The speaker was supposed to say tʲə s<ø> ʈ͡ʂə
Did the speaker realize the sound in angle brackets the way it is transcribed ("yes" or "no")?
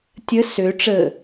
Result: yes